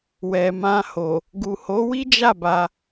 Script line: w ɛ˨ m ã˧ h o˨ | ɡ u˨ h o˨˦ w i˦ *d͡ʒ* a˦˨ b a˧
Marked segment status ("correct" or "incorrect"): correct